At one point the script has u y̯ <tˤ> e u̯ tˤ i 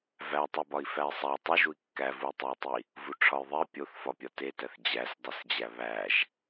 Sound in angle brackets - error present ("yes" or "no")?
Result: no